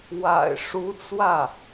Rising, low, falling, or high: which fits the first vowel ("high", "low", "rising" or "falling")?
low